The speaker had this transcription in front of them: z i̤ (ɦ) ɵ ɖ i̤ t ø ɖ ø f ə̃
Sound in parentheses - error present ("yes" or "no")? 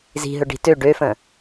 no